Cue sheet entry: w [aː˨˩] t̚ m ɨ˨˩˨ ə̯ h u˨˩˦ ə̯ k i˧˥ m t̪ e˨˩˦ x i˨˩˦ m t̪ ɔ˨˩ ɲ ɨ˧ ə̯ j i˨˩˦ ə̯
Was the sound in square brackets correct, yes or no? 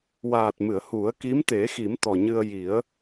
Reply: yes